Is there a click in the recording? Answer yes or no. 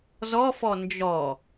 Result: no